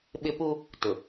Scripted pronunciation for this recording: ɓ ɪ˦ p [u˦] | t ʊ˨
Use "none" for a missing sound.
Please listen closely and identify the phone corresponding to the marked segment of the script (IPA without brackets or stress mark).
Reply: u˦